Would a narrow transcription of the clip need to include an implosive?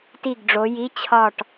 no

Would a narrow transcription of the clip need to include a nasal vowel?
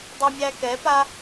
no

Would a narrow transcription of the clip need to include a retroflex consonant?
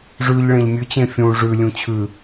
yes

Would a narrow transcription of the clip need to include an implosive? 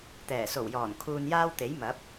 no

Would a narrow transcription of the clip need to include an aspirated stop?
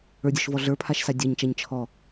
yes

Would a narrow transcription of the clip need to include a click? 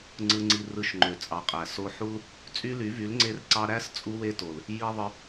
yes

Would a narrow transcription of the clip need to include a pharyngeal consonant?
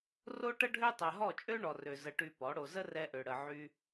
yes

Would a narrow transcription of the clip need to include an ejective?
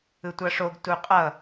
yes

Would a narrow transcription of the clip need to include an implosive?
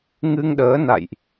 yes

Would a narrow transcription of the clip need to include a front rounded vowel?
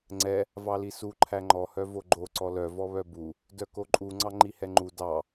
yes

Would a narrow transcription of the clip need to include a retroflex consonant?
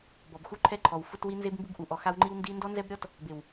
no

